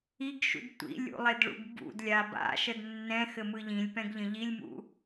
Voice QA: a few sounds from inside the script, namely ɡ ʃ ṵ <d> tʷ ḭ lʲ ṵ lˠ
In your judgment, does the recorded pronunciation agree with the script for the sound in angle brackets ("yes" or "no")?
yes